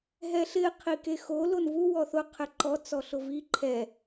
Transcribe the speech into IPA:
ɦ ɛ ɬ ɪ qʰ i k e x o l o n v u w ɔ θ ʊ qʰ ɛ ǃ ɔ t͡s ɔ ɬ ʊ v i ǃʰ ɛ

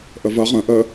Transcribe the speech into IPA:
ʔ ə v ɐ ʁ ə̃ ʔ ə

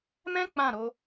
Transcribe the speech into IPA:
m ɛ̃˦ k͡p ã˦˨ ɾ o˧

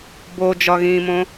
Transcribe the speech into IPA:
b o d͡ʒ ɒ ɣ ĩː m õ

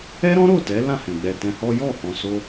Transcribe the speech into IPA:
ɛ˦ ɾ ɔ̃˦ ɾ o˦˨ t ɛ˨˦ l ã˦˨ h ɛ̃˨ ɡ͡b ɛ˨ t ɛ̃˧ h ɔ˦ j ɔ˦˨ h ɔ̃˧ s o˦

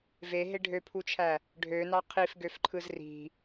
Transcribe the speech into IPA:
v e ɦ e ɖʱ ø pʰ u t͡ʃʰ æ | ɖʱ ø n ɑ qʰ i f ɡ ø f ǃʰ ɯ z r i̤

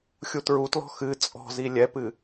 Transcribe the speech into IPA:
xʲ u t ɹ u t l ɔ̤ x ɨ t͡sʼ ɔ̤ z i lʲ ɛ p ɨ

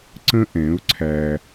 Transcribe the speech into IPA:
ǀ ə̃˦ ʔ ɛ̃˨˦ ʊ̯ ǀʰ æ˦

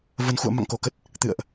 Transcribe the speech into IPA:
v ə˨˩ n x ṵ˧˨ ə̯ m a̰˧˨ ŋ k o˧˩ k ə˦˥ t̚ | t̪ ɨ̰˧˨ ə̯ ʔ

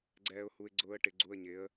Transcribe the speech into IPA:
ɡ͡ǀ ɛː˧ ʊ̯ h u˧ ɪ̯ ɡ͡ǀ ʊː˦˥ ə̯ ʈ ɪ˨˥ ɡ͡ǀ u˧˥˧ ə̯ ɲ ɪ˨˥ ə̯

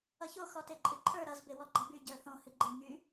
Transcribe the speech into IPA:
ʌ ç o x ɔ t e ǃʼ ɨ ǃʰ ə˞ ɾ ʌ z b e w ɔ ɡ͡ǃ ʌ b y ɟ ə˞ θ õ h ɨ ɡ͡ǃ e ŋ y

